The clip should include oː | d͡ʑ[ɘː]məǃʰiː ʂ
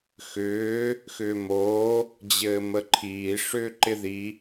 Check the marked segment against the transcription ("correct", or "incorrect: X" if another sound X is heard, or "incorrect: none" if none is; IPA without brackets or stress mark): correct